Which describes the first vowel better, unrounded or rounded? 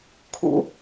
rounded